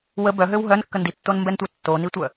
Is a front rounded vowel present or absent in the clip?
present